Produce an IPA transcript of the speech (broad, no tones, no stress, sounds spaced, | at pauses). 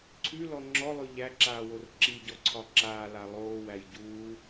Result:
ǀʰ ʉ l ɔ ŋ͡ǁ ɔ lˠ ʉ ʎ æ ǁ aː w o r ǁ i ɟ ɔ ǀʰ ɒ ǁ aː l a lˠ oː w æ j ɟ uː